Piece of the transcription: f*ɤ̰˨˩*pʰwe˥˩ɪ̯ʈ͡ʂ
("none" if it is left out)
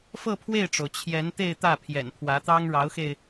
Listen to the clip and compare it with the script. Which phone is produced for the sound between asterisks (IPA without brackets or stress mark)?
ɤ˥˧